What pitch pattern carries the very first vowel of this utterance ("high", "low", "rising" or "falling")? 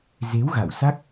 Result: rising